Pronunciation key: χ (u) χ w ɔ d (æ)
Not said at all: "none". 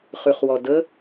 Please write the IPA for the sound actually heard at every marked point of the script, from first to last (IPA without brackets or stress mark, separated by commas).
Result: ʉ, ə